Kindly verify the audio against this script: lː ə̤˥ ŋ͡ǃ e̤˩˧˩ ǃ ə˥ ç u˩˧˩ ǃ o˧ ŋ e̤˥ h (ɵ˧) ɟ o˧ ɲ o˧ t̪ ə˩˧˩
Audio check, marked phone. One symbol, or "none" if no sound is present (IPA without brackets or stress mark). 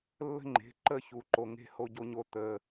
o˧